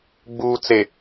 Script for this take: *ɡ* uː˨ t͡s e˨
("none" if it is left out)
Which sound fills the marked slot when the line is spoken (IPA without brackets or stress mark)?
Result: ɡ͡b